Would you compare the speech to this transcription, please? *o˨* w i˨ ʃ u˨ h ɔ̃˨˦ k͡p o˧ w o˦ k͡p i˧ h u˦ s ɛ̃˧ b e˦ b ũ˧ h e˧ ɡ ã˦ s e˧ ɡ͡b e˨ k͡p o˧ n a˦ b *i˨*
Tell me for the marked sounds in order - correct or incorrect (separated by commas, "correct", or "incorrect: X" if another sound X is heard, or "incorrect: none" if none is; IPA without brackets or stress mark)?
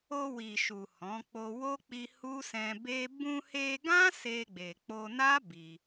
incorrect: o˧, incorrect: i˧